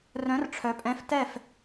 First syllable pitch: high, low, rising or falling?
rising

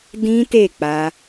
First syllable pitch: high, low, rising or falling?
high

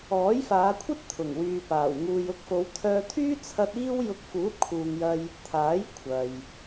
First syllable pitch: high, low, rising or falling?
rising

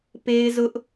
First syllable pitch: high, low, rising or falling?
high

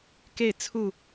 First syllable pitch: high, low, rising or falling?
falling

